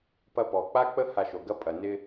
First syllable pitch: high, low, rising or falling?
high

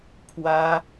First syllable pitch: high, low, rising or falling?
high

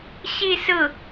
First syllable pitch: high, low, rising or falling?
falling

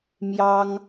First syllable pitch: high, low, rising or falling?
high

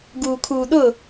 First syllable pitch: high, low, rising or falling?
low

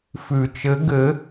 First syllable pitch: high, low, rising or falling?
low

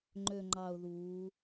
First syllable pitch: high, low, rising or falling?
low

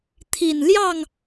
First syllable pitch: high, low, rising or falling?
low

